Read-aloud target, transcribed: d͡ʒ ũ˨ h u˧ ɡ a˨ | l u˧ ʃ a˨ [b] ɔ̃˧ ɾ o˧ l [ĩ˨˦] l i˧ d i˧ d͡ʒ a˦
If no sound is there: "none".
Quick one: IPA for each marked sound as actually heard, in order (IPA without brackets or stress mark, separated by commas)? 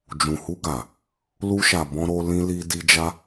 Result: b, ĩ˧